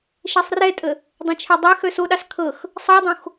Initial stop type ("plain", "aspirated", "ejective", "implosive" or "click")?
ejective